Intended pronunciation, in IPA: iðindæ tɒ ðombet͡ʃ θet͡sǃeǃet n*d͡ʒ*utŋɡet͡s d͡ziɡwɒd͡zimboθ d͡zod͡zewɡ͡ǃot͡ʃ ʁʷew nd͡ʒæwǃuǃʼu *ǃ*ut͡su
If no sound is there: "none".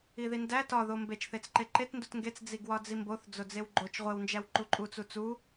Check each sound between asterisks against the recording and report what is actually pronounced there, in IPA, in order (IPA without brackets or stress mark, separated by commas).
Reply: d, t͡s